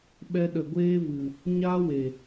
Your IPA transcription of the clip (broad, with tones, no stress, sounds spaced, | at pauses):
ɓ ɛ˧ ɗ ə˨ ɡʷ eː˦ v ɨ˨ | ɲ aː˦ w e˨